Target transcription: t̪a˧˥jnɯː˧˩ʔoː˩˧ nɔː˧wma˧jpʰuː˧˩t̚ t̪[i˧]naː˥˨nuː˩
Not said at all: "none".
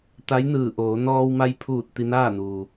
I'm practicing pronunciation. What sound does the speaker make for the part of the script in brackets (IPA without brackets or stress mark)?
i˧